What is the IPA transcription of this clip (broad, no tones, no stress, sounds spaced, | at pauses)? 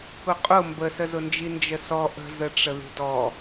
k ʊ qʼ ʊ m b ə s ə z ʊ n d͡ʒ i n d͡ʒ ə s ɔ ʔ ə̤ z ə ʈ͡ʂ ə ð i̤ d ɔ